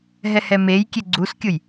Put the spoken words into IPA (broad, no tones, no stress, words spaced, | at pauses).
ɦɛhɛmejkʲe ɡ͡ǀuskʲʊj